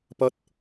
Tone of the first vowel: high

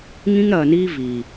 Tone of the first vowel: high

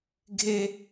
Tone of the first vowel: high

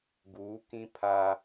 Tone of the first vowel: rising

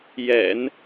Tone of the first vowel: low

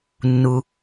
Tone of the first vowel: low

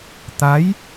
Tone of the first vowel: rising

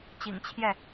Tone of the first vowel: low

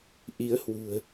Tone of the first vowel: rising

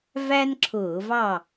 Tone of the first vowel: high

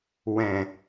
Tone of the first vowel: low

